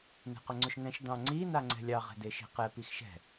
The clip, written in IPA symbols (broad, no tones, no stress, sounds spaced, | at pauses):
n e̤ q ʊ ŋ͡ǀ ɵ ʃ ŋ ɛ̃ ʃ d ɑ̃ ŋ͡ǀ i n a ŋ͡ǀ ɛ̤ lʲ ɑ ʁ ɛ̤ d e ʃ e̤ q ɛ p i x ʃ ɛ̤